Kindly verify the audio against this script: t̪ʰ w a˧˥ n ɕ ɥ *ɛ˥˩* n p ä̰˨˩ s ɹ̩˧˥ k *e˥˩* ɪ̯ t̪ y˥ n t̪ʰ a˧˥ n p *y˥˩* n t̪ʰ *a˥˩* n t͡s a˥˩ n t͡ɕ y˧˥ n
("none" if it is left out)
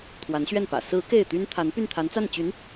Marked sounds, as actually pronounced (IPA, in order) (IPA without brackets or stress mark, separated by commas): ɛ˥˩, e˥˩, y˥˩, a˧˥